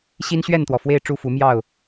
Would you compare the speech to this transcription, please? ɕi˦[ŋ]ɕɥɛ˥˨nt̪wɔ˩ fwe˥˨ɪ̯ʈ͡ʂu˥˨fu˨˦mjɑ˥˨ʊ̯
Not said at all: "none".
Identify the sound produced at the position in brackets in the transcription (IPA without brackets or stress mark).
n